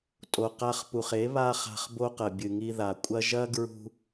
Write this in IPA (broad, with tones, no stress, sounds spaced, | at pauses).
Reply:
tʼ o˨ q a˧ χ p u˨ χ e˨˦ β a˦ χ a̤˧ χ b o˦ q ɐ˨ bʲ ɨ˨ ŋ i˧ ð a˨ kʷʼ ɐ˦ ʒ ɐ˦ ɡ ɹ ṳ˧